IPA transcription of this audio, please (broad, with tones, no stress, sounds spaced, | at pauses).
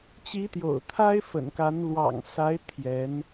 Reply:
t͡ɕ i˧˥ t̪ j o̰˨˩ ʊ̯ t̪ʰ a˥ ɪ̯ f ə̰˨˩ n k a˧˥ n l w ɑ̰˨˩ ŋ s a˧˥ ɪ̯ t̪ʰ j ɛ˧˥ n